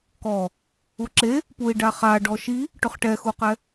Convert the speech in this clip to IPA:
k ɔ | u ǁ e | p u i̯ ɖ a χ a ɖ ɔ ʃ i | ʈ ʊ χ ʈ ɛ x u q ɛ

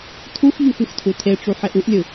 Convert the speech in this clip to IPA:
tʰ u x ʎ u x ɯ x tʰ u tʰ e ʈ͡ʂ u ħ e ʔ u ʔ lʲ ɯ

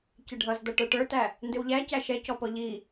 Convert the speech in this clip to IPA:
c ɪ ɖʱ ʌ z d̪ ʌ ʈ ə˞ ʈ ə˞ t æ | n d ɪ w ʎ æ c æ ʃ ɛ c ɔ p ɔ ʎ i

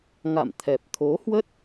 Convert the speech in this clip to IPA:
ŋ a̰˧˨ m t̪ʰ ɛ˨˩ p̚ t̪ʰ o˨˦ h w ə˦˥ t̚

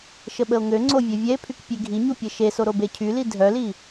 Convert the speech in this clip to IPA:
ʃ ə ɓ ə o̯ ŋ ø ŋ͡ǀ o vʲ œ vʲ ɛ e̯ pʰ y k pʲ e ɡʱ i ɲ u pʲ ɛ ʃ e s o ɾ o b e cʰ y l i dʱ œ l i

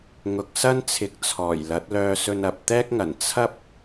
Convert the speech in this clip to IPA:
ŋ ʊ˨ k̚ s ɐ˥ n t͡sʰ ɪ˨˥ k̚ t͡sʰ ɔː˨˩ j l ɐ˨˥ t̚ l œː˧ s ɵ˧ n ɐ˨ p̚ t̪ ɛː˥ k̚ ŋ ɐ˨˩ n t͡sʰ ɐ˥ p̚

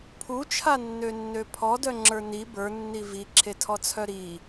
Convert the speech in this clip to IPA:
pʰ u t͡ʃʰ a nː ø nː ø pʰ ɔ d œ ŋ͡ǁ ə˞ n i b ə˞ nː i v i ǁʰ e tʰ ɔ t͡sʰ œ ɾ i

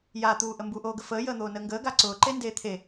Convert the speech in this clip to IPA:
j a t̪ uː ʔ ə m b u ʔ oː ɡ ə f əː j əː n̪ oː n əː ŋ ɡ əː ɡ a ǀ ʊː ǃ e n d eː t̪ʰ e

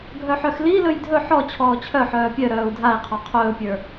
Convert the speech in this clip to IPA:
ɡʱ œ ħ œ x l i l ɵ j dʱ ɵ ħ ɔ t͡ɕʰ ɔː t͡ɕʰ œ ħ œː pʲ œ ɾ œː u̯ dʱ a i̯ qʰ ɔ qʰ ɵː pʲ ə˞

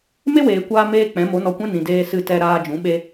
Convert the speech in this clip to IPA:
m e˦ w eː˨ kʷ aː˧ m eː˦ k͡p ɛ̃˨˦ m o˨˦ n ɔ˧ kʷ ɛ̃˦ n ĩ˨ d eː˧ s ɨ˧ t ɛ˧ ɾ aː˧ d͡ʒ ũ˨˦ ɓ e˦

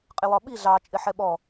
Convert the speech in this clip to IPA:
qʼ ɪ w ɒ ɓ i ɮ ɑ t͡ʃʼ ɪ ħ ɛ ɓ ɔ

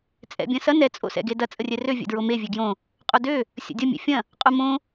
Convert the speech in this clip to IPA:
t͡sʼ ɛ̰ bʲ ɐ̃ s ɐ n ɛ t͡sʼ o̰ s ɛ̰ ɡ e d ɐ t͡sʼ ə rʲ ɛ r ø vʲ ɛ̰ d ɹ o m e vʲ e ɡ j õ | qʼ o d ø | sʲ ə̰ dʲ ɐ mʲ ɛ̰ fʲ ɐ̃ | qʼ o m õ

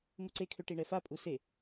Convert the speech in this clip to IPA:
m u ǀ e kʰ ø ʈ i ɳ ɛ f a pʼ u s e

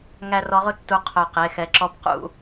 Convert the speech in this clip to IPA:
ŋ æ˦ r ɔ˨˦ ʁ ʊ˦ tː u˧˩ qʰ œ˧˩ q e˩˧˩ x ɛ˨˦ ǁ ɔ˨˦ p q ṵ˨˦

